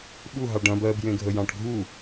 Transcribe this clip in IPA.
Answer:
ɓuɦɑ ɖɐ̃ bɜbjẽɡʱə jɑ̃ʈɡʱu

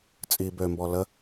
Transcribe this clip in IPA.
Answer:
t͡sʼi bømbɔ lə

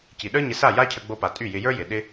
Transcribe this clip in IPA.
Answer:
ci˨ɗə˞˦ɲɪ˧sa˦˨ ja˦cʰə˧ɡ͡bo˧pa˨ tʼy˦˨jɪ˧ jə˞˦jɪ˨ ɗɪ˦

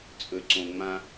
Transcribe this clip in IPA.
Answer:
t͡sʼɵ˩ǀõ˩ ŋ͡mã˨

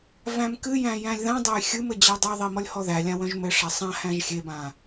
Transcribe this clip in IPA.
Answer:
væ̃mkɨjæ̃ jæ̃lʲðãdˤæj xʲɨmɘ d͡ʑædˤœðˤi mɔlʲhɔðælʲã wœ̃ʒmɘʂa sˤã hæ̃ʒxʲebã

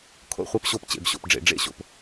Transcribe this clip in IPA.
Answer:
kʰo̰˥˧χʷɛ˥˧pɕo˥˧p t͡ɕḛ˩˧bɕo̰˩˧pɖ͡ʐḛ˩˧ ɖ͡ʐḛ˥˧ɕo̰˩˧p

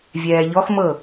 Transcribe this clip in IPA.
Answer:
vʲɛːʎɔxmɤ

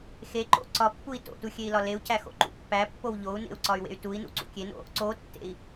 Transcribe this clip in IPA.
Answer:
xeǃo̰ ǀɒpːui̯ to̰tu xʲei̯lɒleu̯cʰæ xo̰ǃṵpːæpːow ʎou̯nḛu̯ ǀɒy̯wḛy̯tui̯nṵ ǀṵkʲeno̰ | ǀotːḛi̯

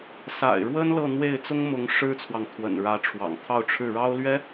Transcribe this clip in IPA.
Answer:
sa̰˨˩ɪ̯ɻwə˥n lɤ˥˧n̪we˥˩ɪ̯ t͡sʊ˥ŋmʊ˧˥ŋʂɻ̩˥t͡sʰwɑ˨ŋ t̪ʰwə̰˨˩nɻä˧˥ʈ͡ʂʰwɑ̰˨˩ŋ t̪ʰɑ˥˧ʊ̯ʈ͡ʂʰɻ̩˥˩ ɻɑ˥ʊ̯lɥɛ˥

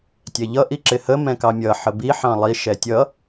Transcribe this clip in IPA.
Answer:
tʲɛʎʌ ʔiǁɪhə mɛ̃kɑmʲʌ ħəbi ħɑ̃lˠi ʃɛtʲʌ

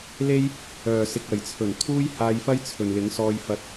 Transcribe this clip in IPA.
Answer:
le˥j | œː˨˩sɪ˨k̚ɐ˨˩j t͡sʰɵ˨˩nt̪ʰuː˥jhaː˧jfɐ˥j t͡sʰɵ˨nlɪ˨˥ŋsɔː˧jfɐ˧t̚

